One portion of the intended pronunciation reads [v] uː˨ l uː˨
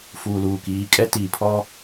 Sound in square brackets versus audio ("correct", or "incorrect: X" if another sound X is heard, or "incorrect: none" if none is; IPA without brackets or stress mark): incorrect: f